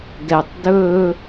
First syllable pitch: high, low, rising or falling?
low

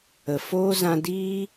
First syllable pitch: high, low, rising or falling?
low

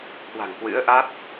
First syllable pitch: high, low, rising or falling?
low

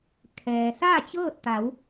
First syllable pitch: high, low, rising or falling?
low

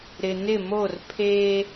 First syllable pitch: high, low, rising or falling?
low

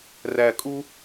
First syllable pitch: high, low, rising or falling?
low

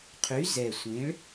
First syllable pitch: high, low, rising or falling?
rising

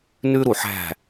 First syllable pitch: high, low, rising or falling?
high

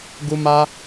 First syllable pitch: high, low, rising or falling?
high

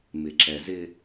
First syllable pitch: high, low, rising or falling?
low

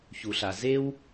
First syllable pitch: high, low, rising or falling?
low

